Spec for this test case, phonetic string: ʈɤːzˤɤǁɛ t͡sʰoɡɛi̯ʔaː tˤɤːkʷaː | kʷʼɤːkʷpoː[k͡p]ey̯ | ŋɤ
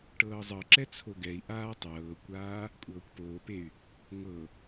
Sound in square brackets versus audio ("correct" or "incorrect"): incorrect